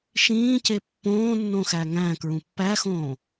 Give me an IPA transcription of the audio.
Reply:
ʃ ĩː c e pː õː nː õ x æ ŋ æ̃ k ɹ ũ pː æ x õː

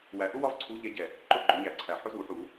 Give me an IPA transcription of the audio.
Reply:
w æ˨˩ ʔ ʊ˦ w ɒ˦ v ǀʰ u˨˦ ʎ ɛ˨˦ ɟ ɛ˨˩ | ǃ ʊ˥˨ ɡ͡ǃ ʊ˨˦ ɲ æ˧˩˧ ǀʰ æ˨˩ ħ ʊ˦ z u˧˩˧ ħ u˧˩˧

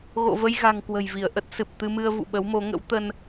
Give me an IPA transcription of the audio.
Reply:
ɣ o̰˧˨ v ə˧ j ɣ a̤˨˩ ŋ k w ə̤˨˩ j v i˧˩ ə̯ ʔ ə˦˥ t̚ s ɨ˨˩ p̚ t̪ ɨ˧ m ɨ˧ ə̯ v ṵ˧˨ ɓ ə˨˦ w m o˨˦ ŋ ə̰˧˥ w t̪ ə˧ n

